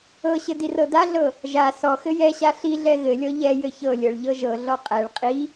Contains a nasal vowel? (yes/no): no